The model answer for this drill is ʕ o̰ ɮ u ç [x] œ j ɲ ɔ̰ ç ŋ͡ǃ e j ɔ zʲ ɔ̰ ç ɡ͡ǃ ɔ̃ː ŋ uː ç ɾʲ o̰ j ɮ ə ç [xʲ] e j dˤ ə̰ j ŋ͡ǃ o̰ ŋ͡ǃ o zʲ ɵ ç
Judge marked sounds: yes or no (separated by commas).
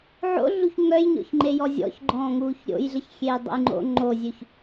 no, yes